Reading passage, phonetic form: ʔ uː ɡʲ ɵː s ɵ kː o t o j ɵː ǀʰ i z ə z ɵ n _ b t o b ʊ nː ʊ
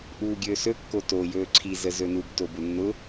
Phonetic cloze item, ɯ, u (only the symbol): u